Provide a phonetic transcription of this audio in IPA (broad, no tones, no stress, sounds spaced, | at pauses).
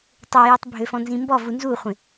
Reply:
tˤ ø j y tˤ bʱ ø f ɔ̃ n z ĩ m b ɔ v u n z u χʷ ẽ